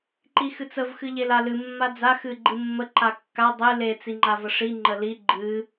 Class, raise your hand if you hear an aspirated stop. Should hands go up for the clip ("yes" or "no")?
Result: no